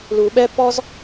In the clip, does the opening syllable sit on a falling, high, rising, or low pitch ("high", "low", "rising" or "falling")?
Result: low